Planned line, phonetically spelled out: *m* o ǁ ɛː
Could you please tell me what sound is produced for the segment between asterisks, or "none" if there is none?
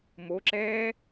m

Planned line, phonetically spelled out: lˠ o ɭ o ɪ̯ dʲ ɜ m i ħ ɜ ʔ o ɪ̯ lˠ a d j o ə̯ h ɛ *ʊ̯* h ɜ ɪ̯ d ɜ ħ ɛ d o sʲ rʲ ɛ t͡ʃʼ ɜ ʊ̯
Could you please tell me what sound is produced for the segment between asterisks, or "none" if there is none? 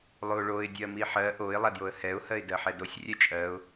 ʊ̯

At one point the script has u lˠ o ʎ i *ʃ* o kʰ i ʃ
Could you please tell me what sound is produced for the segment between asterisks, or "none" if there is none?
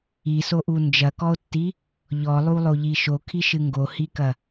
ʃ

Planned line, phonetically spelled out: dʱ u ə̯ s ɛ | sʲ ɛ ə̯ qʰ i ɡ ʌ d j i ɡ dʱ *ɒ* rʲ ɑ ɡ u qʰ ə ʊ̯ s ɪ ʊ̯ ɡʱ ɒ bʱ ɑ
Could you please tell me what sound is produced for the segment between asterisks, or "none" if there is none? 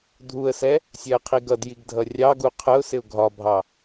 ʌ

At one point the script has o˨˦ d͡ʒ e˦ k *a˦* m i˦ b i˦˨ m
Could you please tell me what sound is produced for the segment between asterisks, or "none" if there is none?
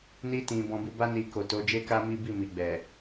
a˦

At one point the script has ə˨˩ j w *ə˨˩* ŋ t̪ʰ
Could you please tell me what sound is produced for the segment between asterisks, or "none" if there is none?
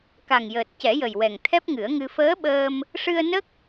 ɛ˨˩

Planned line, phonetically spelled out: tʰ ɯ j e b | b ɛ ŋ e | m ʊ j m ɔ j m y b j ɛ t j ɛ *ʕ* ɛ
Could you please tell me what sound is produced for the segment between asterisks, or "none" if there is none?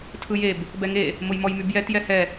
h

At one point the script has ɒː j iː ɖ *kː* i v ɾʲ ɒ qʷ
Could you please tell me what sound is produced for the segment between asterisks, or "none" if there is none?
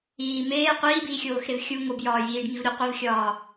ŋ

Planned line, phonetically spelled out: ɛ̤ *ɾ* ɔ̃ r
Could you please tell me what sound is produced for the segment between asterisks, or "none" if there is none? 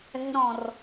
ɾ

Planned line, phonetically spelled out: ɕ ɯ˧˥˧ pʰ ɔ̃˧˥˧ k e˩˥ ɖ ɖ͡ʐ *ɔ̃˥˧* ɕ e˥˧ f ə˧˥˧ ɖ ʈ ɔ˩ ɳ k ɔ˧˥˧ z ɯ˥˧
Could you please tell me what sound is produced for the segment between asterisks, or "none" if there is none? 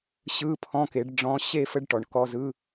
ɔ̃˧˥˧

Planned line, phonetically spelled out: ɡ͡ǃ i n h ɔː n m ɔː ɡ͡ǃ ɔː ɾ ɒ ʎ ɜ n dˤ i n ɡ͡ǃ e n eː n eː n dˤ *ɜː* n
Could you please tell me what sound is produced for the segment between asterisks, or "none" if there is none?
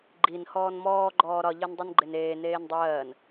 ɜː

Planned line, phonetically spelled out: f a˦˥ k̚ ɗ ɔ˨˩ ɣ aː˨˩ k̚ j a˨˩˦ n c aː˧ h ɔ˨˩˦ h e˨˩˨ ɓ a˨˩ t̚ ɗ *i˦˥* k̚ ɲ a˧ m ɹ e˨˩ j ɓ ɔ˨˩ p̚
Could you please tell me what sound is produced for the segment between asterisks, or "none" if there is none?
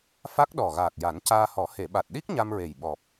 i˦˥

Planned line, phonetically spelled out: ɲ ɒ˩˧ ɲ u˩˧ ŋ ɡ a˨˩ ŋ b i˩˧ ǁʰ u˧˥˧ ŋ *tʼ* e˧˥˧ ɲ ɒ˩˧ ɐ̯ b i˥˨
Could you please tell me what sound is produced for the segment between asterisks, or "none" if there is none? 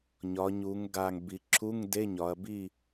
d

